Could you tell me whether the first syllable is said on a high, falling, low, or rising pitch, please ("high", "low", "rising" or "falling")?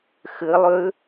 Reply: rising